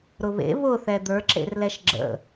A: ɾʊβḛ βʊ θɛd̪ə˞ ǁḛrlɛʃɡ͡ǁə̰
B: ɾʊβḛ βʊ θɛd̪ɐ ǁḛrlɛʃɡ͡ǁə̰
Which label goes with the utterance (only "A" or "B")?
A